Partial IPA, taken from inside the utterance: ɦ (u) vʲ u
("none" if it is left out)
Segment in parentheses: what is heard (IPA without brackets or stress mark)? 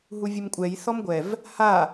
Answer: u